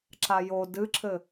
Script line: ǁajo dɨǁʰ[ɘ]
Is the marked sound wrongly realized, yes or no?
no